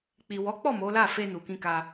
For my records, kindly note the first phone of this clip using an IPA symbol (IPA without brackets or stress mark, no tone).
k͡p